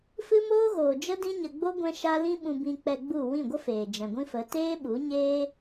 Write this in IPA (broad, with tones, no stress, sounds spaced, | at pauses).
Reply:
f ɨ˦ m oː˦ ɣ oː˨ d͡ʒ ə˦ d ĩ˦ ɲ ə˧ ɡ͡b o˦ ɡʷ ɛ̃˦ ʃ a˦ l ĩ˦ ɓ ũ˧ b ĩ˧ k͡p ɛ˧ ɡ͡b u˦˨ w ĩ˦˨ ɡʷ ə˦ f eː˨ d͡ʒ ɛ̃˨ ɡʷ ĩ˦ f ə˨˦ t eː˦ ɓ u˨˦ ɲ eː˦